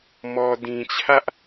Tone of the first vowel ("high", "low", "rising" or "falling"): low